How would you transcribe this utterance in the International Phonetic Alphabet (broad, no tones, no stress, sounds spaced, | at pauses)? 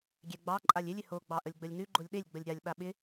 ɡʲ ɛ ɡ͡b ɑ ǃʼ a lʲ ɪ lʲ ɪ h o ɡ͡b ɑ ʔ ə lʲ ɡ͡b ə lʲ n ʉ ɡ͡ǃ o lʲ ɗ e lʲ ɡ͡b ə lʲ ɾʲ a lʲ ɓ a ɓ ɪ